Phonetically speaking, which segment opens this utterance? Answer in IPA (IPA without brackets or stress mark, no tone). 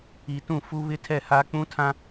i